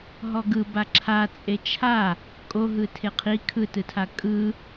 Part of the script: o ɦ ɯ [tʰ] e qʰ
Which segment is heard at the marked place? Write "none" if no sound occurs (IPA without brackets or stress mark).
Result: tʰ